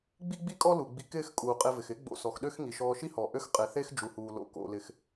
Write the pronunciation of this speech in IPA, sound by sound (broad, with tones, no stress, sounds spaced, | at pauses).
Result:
ɡ͡b i˥ ɡ͡b i˥ kʼ ɔ˥ l u˩ ɡ͡b i˧ k ɪː˥ x kʼ uː˩ qʼ e˧ v ɪ˩ x ɪ˥ ɡ͡b o̰˧ s ɔ˩ x ɗ ø˥ x ŋ i˩ ʃ ɔː˧ ʃ i˥ h ɔ˩ ʔ ø˥ x qʼ e˩ θ e˥ x d͡ʒ u˩ h uː˩ l o̰˧ k o̰˩ l ɪ˩ x